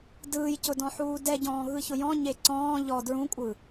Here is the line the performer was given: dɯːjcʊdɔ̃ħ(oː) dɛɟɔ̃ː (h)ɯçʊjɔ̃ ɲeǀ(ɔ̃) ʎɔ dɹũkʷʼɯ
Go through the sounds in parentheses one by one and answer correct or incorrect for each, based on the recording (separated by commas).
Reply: incorrect, incorrect, incorrect